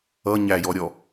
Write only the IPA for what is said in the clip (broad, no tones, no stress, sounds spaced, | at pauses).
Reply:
ʌ ɲ æ j ɔ ɾʲ ɔ